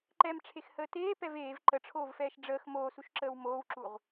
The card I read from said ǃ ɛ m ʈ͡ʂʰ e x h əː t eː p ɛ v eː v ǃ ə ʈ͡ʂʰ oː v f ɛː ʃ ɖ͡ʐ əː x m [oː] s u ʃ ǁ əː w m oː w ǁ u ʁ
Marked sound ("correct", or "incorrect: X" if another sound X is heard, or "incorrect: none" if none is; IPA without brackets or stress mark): correct